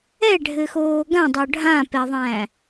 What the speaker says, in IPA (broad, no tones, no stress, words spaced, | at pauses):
ɛɖʱɘxoː ɡãdˤo ɖʱãpɛðˤæ̃